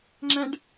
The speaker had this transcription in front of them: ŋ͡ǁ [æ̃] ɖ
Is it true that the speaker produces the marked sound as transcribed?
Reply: yes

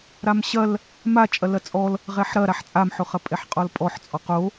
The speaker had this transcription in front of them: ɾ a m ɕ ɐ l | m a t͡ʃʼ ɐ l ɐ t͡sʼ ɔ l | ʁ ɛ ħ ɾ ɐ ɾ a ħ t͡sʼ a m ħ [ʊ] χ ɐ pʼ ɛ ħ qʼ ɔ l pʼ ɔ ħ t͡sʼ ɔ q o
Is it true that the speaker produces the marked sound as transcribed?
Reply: yes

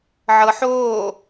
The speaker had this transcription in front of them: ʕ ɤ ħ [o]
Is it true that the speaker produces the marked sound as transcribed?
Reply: no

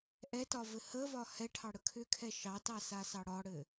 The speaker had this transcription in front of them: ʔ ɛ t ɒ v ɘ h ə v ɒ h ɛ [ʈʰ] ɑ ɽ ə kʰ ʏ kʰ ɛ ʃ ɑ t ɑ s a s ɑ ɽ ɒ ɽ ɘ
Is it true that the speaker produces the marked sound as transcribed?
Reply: yes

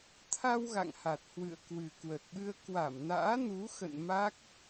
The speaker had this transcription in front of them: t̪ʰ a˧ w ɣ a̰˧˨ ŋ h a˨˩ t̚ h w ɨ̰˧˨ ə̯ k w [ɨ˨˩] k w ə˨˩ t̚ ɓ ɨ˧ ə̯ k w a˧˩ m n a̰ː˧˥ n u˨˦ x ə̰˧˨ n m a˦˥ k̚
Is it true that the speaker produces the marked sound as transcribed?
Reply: yes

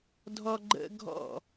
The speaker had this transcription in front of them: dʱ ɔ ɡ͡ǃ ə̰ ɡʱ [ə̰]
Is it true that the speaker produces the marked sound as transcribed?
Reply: no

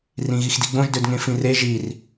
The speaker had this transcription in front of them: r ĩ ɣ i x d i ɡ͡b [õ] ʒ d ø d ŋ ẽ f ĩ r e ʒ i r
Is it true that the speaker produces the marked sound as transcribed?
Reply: yes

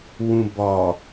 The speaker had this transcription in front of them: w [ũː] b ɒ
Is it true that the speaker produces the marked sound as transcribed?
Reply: no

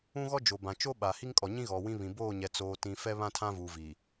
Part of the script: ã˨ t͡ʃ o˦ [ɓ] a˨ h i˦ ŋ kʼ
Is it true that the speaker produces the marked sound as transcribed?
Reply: yes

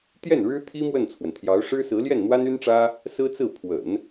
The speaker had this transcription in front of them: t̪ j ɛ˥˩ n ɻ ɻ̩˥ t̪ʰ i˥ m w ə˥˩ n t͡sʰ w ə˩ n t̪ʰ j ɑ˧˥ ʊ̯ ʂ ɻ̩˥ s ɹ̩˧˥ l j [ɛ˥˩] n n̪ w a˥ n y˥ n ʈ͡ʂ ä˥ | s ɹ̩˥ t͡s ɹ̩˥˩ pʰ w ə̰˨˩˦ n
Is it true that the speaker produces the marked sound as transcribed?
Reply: yes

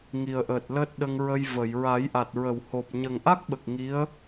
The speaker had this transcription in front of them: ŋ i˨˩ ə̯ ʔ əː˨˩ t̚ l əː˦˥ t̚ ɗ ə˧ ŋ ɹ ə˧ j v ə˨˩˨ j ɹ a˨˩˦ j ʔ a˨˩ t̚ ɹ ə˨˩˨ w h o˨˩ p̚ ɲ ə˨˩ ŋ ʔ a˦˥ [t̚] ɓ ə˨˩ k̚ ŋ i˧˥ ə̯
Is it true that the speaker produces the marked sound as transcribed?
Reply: no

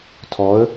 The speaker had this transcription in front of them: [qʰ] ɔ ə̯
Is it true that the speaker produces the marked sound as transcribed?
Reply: no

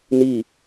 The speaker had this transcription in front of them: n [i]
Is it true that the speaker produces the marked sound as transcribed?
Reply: yes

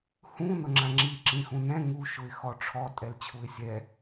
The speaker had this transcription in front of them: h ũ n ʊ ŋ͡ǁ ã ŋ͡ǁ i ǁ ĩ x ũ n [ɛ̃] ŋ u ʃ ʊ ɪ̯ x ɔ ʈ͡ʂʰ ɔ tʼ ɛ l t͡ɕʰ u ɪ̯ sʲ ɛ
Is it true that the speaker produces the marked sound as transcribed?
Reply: yes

